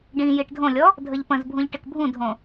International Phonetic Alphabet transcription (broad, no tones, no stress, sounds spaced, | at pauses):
ɖ ĩ j i ʈ dʱ õ lʲ ɔ | dʱ ə ʎ p ə̃ z bʱ ũ ʎ ʈ ɪ k bʱ ũ dʱ õ